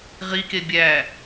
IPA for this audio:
ʁike bʲæ

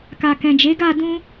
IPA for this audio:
ka˨kɛ̃˨d͡ʒe˨˦ ɡa˦˨dũ˧

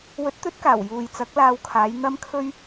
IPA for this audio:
wɵ˨˥t̚t̪ɵ˨˥t̚kaː˨˩w juː˨jt͡sɐ˨˥k̚laː˧wkʰaː˨˧j n̪ɐ˥mkʰɵ˥ɥ

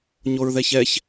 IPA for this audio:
ɲoɹðɛçɛç

